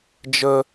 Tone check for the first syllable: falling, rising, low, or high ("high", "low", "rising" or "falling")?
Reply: high